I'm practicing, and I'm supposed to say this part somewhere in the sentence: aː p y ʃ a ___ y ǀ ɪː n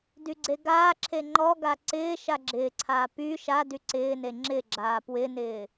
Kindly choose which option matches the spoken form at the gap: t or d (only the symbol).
d